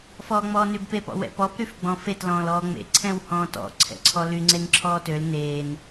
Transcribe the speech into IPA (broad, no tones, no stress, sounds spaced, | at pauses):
f ɔː ŋ͡m ɔː n y b p e p ɔ̰ w ɛ̰ p ɔ p ɾ y f ɡ͡b ɔ̃ f e t l ɔ̃ː l ɔː ŋ͡m ḛ ǀʰ ɛ̃ w h ɔ̃ː t ɔ̰ ǀʰ ɛ̰ ǀʰ ɔ l y ŋ͡ǀ e n ǁʰ ɔː t ø l n eː n